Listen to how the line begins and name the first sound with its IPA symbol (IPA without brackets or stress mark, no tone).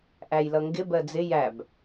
ʔ